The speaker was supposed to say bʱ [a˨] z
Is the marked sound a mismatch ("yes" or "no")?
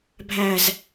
yes